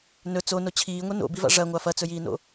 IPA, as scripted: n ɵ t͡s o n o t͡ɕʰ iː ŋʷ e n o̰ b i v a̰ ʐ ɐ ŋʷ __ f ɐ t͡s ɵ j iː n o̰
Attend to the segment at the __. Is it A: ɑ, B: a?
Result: B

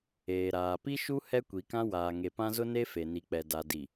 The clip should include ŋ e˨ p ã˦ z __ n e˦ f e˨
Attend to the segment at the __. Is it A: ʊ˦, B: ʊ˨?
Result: A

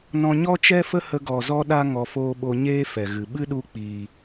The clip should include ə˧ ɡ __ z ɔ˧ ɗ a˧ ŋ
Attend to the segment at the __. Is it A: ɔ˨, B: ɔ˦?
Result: A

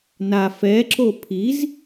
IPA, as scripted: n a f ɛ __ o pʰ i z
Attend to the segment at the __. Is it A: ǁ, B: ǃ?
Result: A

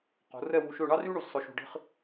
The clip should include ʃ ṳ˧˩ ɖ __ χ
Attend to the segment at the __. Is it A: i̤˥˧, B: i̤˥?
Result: B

